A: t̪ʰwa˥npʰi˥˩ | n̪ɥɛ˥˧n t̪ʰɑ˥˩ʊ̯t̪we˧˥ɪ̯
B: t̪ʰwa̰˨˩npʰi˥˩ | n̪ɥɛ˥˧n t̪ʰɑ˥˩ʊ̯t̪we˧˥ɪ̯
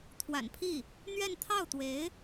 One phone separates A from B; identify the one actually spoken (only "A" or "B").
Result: B